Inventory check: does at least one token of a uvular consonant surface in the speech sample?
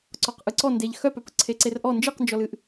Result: yes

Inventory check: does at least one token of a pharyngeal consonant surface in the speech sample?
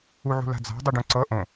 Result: yes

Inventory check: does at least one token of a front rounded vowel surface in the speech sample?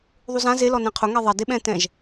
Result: no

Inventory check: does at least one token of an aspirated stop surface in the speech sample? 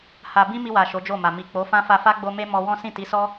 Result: no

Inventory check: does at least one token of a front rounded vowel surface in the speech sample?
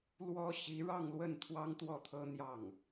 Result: no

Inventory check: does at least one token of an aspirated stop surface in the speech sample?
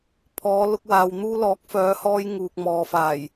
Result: yes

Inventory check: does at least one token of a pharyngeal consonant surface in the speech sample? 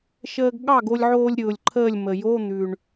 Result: yes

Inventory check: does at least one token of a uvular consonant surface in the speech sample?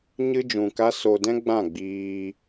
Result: no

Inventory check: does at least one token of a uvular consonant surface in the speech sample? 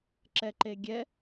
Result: no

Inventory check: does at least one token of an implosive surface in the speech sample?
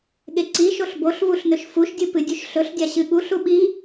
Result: yes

